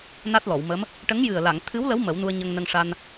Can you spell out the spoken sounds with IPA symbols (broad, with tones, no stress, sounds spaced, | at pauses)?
n a˦˥ t̚ l ɔ˨˩˨ w m ə˧˥ m | ʈ ə˧˥ ŋ j ɨ˨˩ ə̯ l a˨˩˨ ŋ t̪ʰ ɨ˧˥ w l ə˧˥ w m ə˨˩˦ w n u˧ ə̯ ɲ ə˧ ŋ n ə˧ ŋ ʂ a˧ n